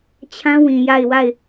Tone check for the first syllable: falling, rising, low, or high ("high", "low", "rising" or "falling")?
high